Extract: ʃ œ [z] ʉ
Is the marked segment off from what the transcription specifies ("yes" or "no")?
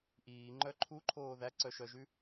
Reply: yes